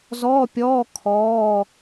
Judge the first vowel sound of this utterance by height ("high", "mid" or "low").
mid